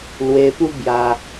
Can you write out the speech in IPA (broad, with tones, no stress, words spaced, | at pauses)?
lwe˧pu˦ bja˧